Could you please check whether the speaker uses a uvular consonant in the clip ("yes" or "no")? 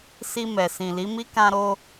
no